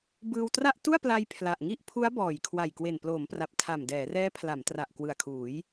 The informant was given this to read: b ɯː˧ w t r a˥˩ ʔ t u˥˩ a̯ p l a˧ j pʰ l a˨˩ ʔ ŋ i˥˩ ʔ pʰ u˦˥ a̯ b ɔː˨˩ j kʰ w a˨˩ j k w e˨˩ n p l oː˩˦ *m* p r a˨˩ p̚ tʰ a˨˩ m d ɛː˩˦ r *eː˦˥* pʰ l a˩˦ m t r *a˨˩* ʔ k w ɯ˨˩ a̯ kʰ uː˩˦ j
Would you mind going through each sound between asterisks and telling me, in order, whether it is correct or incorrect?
correct, incorrect, correct

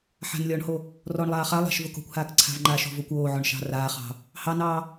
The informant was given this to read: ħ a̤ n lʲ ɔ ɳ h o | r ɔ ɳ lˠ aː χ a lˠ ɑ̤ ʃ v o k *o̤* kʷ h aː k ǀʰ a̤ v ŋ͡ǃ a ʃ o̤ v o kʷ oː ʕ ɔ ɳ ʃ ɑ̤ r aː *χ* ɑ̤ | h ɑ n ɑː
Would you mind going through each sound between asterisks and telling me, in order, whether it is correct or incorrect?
correct, correct

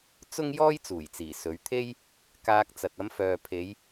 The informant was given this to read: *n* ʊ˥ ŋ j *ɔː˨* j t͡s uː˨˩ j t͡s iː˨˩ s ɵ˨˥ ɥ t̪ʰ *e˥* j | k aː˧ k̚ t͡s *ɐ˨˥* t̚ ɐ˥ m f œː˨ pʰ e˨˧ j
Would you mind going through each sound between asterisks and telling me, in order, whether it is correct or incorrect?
incorrect, incorrect, correct, incorrect

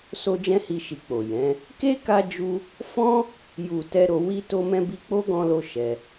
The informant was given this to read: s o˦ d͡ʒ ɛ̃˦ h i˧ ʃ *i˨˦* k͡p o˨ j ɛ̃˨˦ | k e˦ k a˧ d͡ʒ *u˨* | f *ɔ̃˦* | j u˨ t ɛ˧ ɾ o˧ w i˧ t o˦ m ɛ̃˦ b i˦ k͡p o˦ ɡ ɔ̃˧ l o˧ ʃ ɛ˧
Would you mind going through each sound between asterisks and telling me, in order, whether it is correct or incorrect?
incorrect, incorrect, correct

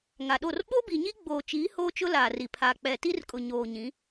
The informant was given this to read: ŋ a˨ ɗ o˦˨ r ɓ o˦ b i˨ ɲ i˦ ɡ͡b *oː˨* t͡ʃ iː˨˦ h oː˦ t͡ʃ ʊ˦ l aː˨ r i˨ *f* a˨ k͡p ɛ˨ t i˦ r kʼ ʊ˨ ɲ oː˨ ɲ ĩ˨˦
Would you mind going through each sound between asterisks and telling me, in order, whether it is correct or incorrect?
correct, incorrect

